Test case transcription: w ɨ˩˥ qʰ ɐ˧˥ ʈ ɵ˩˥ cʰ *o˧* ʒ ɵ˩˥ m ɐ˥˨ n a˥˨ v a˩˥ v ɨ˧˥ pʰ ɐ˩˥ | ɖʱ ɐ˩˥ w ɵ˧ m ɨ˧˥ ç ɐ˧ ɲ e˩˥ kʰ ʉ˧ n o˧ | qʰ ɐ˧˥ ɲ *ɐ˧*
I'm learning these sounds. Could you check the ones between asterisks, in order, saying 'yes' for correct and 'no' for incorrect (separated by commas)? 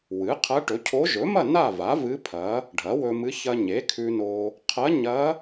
no, no